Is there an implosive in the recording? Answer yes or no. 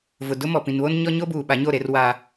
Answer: yes